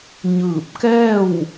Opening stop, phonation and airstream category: plain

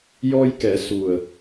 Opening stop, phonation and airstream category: plain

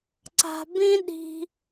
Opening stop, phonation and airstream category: click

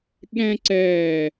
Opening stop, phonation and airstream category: implosive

